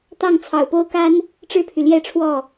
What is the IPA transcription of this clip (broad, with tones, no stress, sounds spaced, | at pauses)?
t̪ ɑ˥˨ ŋ t͡sʰ ɑ˨˩ ʊ̯ p o˦ ʊ̯ k a˦ n | ʈ͡ʂ ɻ̩˦ pʰ y˨ l j ɛ˥˨ ʈ͡ʂʰ w ɔ˥˨